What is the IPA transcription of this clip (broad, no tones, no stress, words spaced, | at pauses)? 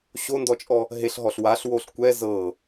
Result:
ɕondɔt͡ʃʼɔ | ɦeɬɦɔɬ waɬwoɬ kʷɛ zɤ